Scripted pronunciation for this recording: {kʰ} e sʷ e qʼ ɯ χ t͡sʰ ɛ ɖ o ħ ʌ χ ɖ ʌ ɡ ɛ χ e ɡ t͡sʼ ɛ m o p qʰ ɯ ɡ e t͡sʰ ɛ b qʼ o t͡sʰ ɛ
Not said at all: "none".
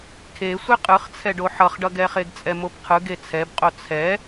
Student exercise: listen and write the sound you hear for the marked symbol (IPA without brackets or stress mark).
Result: kʰ